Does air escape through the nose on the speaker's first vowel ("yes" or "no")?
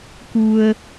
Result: no